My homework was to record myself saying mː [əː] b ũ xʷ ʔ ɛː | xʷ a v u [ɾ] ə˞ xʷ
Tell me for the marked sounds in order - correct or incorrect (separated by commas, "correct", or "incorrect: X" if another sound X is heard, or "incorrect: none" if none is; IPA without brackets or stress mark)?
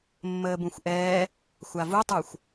correct, incorrect: tˤ